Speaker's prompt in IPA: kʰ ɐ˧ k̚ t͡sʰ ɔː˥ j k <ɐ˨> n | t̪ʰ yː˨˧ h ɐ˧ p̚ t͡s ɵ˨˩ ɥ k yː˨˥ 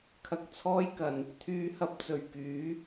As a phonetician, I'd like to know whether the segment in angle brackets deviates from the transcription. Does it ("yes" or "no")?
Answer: no